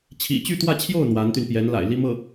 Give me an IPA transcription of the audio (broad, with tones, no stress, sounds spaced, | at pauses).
t͡ɕʰ ḭ˨˩ t͡ɕ y˥˧ t̪ w ä˥˧ t͡ɕʰ j o˥˩ ʊ̯ n̪ w a˧˥ n t̪ y˧ n p j ɛ˧˥ n l a̰˨˩ ɪ̯ l i˥ m ɤ˥˩